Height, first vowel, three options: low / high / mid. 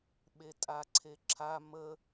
mid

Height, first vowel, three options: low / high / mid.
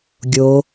mid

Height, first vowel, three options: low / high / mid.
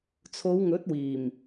mid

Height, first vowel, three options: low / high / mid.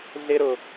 high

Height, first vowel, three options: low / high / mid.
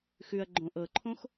high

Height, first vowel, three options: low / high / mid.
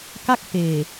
low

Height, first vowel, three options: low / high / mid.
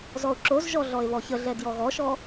mid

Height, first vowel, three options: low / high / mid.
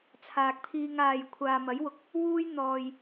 low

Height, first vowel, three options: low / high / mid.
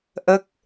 mid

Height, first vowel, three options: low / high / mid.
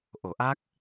mid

